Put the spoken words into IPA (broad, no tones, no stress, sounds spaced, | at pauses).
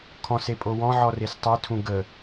kʰ ɔ̃ s e pʼ o w ɔ̃ ʕ ɔ r e s tˤ ʏ tʰ ũ ɡ ə